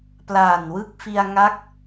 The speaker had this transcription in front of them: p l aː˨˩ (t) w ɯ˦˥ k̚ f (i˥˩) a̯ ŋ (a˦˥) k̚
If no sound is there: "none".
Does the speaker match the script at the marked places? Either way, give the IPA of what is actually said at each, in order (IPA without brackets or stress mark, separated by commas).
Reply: n, i˧, a˦˥